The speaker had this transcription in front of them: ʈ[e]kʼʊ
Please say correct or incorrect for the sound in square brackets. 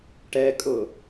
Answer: incorrect